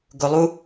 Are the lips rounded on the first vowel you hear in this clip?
yes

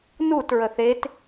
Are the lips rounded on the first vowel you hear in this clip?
yes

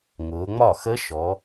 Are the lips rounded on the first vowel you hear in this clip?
yes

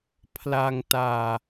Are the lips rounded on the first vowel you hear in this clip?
no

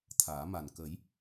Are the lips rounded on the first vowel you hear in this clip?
no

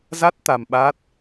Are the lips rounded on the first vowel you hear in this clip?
no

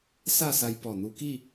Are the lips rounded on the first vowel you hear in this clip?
no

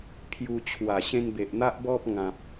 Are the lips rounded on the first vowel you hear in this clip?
yes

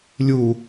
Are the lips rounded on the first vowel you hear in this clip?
yes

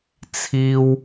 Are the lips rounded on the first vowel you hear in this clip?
no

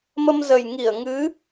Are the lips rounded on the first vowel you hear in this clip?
no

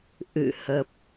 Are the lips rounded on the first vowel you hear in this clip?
no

